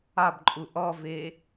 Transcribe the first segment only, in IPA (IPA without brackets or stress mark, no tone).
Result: ɑ